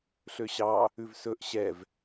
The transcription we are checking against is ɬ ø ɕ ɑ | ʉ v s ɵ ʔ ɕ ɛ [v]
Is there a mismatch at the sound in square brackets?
no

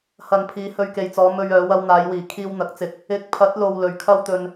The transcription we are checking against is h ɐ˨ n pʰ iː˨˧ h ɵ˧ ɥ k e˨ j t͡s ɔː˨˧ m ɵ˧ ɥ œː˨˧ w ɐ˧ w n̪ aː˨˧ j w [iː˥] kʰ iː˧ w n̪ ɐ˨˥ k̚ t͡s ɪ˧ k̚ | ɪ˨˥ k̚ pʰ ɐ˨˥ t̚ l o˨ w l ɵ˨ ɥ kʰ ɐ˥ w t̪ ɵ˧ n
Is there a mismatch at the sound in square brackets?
yes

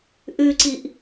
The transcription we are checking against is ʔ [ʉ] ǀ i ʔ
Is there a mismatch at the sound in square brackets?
no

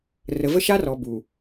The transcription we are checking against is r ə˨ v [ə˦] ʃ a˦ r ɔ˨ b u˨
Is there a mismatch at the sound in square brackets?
no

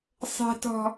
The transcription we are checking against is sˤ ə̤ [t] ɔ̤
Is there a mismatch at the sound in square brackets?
no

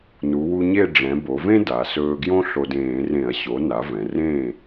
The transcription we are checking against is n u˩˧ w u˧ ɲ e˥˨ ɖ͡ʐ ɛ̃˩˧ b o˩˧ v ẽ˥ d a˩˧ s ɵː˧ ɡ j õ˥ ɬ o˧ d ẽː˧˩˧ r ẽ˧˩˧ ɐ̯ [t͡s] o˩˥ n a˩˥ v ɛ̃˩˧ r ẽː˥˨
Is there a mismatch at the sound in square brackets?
yes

